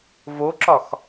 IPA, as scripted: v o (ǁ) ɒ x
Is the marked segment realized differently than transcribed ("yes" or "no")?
no